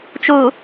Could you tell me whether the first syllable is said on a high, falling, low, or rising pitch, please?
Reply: low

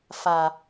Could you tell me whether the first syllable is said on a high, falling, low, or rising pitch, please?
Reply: low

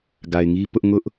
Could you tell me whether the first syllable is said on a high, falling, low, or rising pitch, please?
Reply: low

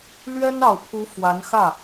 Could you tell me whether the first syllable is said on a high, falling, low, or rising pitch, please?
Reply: high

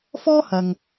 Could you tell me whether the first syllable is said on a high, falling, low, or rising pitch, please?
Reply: high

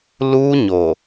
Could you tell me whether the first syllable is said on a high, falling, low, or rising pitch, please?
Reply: high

